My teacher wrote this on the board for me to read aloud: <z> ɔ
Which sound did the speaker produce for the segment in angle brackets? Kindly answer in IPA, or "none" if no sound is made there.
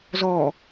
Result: z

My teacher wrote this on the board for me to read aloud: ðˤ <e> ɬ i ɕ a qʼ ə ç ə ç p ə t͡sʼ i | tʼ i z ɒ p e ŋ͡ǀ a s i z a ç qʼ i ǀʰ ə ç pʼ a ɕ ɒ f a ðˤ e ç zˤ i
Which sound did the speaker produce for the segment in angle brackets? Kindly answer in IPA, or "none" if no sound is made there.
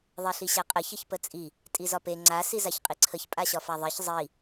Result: e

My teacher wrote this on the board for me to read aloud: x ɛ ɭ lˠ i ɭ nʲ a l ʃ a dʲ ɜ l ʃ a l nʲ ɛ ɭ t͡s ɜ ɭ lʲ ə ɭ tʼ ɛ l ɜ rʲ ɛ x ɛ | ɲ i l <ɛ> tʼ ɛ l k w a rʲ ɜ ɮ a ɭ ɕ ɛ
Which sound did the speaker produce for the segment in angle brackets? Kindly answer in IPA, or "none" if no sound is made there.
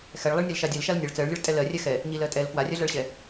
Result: ɜ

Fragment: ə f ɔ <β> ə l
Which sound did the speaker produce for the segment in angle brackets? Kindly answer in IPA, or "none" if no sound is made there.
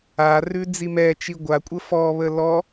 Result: β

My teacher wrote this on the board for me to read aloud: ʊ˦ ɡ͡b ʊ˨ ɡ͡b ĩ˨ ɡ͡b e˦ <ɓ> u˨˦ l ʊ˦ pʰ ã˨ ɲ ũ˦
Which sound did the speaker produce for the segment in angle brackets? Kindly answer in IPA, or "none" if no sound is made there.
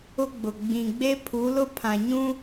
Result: pʰ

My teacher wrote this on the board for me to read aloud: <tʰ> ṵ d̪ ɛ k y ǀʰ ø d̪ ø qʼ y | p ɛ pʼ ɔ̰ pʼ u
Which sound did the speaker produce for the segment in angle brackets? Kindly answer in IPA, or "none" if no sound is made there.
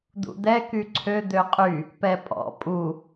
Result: d̪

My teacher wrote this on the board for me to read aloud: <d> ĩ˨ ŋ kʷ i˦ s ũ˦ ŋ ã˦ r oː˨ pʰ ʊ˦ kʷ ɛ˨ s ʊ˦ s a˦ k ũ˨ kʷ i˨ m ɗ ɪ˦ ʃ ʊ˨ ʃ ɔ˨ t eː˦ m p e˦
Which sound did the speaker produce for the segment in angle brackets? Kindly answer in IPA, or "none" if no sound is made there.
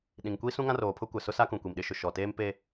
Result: ɗ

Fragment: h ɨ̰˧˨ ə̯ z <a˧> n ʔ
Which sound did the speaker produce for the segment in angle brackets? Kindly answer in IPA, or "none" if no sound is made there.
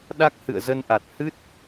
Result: ə˧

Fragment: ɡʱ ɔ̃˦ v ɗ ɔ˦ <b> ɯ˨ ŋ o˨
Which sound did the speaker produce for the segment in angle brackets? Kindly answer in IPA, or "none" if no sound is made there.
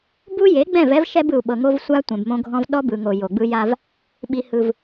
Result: b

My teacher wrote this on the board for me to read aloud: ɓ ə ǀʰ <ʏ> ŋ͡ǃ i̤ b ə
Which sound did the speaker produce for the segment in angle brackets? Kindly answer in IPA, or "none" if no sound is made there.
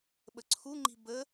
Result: u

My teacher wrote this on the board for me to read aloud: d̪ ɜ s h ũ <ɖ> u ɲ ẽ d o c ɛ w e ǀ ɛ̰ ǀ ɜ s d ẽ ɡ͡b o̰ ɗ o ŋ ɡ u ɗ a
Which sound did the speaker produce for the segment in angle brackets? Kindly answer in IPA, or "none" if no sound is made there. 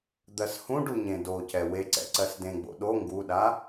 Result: ɖ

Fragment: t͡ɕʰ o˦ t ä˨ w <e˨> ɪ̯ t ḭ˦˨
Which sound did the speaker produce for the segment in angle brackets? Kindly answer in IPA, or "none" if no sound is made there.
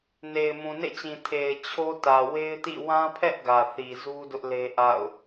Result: e˦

